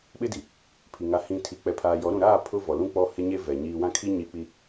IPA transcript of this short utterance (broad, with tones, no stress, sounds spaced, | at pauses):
ɓ ɪ˦ d i˨ | pʰ i˨ ŋ a˨ h ĩ˨ tʰ i˨ k͡p ɛ˨ pʰ aː˨ j ɔ˨˦ ɾ ũ˨ ɾ aː˦˨ pʰ ʊ˦ v ɔ˨ l ũ˦ k͡p ɔ˦ h ɪ˦ ɲ e˦ v ɛ˨ ɲ iː˦ w ã˦ kʰ i˦ ɲ i˨ k͡p i˨